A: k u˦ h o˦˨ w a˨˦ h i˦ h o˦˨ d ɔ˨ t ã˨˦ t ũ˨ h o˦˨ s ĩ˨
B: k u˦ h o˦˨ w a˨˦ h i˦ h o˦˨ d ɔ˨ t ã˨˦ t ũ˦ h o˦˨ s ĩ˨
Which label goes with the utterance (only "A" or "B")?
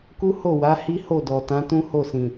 B